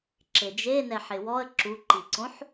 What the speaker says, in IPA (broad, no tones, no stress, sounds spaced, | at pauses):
ǁ e d͡ʒ e n ɛ ħ ɪ w ɔ ə̯ ǁ u ǃ i ǀ õ ħ